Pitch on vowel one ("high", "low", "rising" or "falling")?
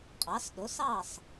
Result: rising